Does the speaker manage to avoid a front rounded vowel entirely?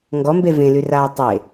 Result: no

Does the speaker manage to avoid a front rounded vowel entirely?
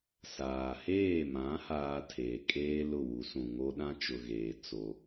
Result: yes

